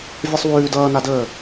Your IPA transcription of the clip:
vʲ ʌ sˤ w ʉː d ʌː n a d əː

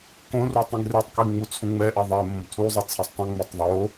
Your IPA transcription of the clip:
k õ r u tˤ ĩ ɡ r e tˤ k i ŋ͡m u t͡sʰ ũ ŋ͡m ɛ ʔ ɛ ðˤ ɛ m õ b tʰ u zˤ e t͡sʰ e sˤ tˤ ũ ŋ͡m ɛ tˤ ðˤ o

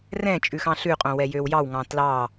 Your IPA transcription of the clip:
r ɛ̃ t͡ʃʼ ʉ x ɑ̃ ɬ ʉ qʼ õ w ɛ j ø w j ɑ w ŋ ɑ̃ t l ɑ

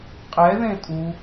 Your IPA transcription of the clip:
qʼ ɛ ð ẽ tʼ u

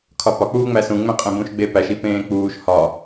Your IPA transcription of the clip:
kʰ ɒ p ɒ k͡p uː ŋ͡m æ s ũ ŋ͡m ẽ qʼ ẽ b ũ ʃ ɡ͡b e p æ ʃ i p ẽː k͡p uː ʃ h ɒ

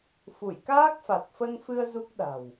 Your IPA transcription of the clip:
f u˧˩ j k aː˦˥ k̚ f a˨˩ t̚ f ə˧ n f ɨ˧ ə̯ z u˦˥ k̚ ɗ a̤˨˩ w

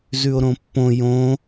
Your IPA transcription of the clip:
z ʉ o̯ ɾ õ pː õ j õ

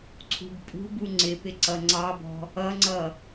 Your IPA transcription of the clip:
ǀʰ ṳ b pʼ ṳ b u ŋ͡ǀ ɪ p ɪ ǀ ʌ ŋ͡ǀ ɑ b ɔ̤ | ʌ ŋ͡ǀ ʌ

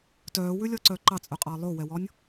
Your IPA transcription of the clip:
t œː w ʉ lʲ ɔ ǀ œ ǃ ɑ t͡sʼ œ qʼ ɑ lˠ o w ɛ w ɔ nʲ

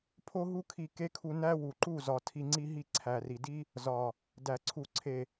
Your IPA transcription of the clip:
pʰ o˦ ɦ u˦ kʰ i˧ k e˦ kʰ u˧ n æ˦ w u˨ ǃ u˦˨ z ɒ˨ tʰ i˧ ŋ͡ǀ i˦ ɦ i˦˨ ǀʰ æ˨ r i˨ d i˦ | z ɒ˨ | d æ˨ ǀʰ u˨ ǀʰ e˨

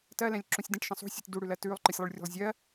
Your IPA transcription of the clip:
t ɜ l ɛ̃ lʲ ǁ ũ sʲ d ə̃ ʈ ʃ ə̃ sˤ ṳ sʲ ɨ t d u ɽ ʉ l ɜ t ʉː lˠ ǃ ɨ sʲ lˠ u ɭ rʲ ṳ lˠ zʲ ɜ

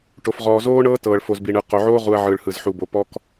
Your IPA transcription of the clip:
ʈ o˨ f ʁ ɔː˨ z oː˦ ɳ ɤː˦ t ɤː˨ ɭ f o˨ z b i˨ ɳ ɯ˨ q o˨ ʕ oː˦ ʁ u˨ ɐ̯ ʕ ɯː˨ ɭ h ɯ˨ z ħ u˨ b o˨˦ p ɔ˦ k

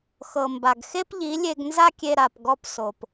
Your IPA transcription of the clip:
x ɤ˨ m b a˨ ɡ x e˦ p ʎ i˨˦ lʲ e˧ ɡ n z a˦ kʲ e˧ ɾ a˨ p ɡ ɔ˧ p s o˨ p

